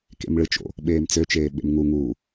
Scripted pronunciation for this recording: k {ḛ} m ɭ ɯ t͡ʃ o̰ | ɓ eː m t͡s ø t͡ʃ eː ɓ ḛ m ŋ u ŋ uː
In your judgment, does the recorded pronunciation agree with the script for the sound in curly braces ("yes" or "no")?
yes